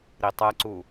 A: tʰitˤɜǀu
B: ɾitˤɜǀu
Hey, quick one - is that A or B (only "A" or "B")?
B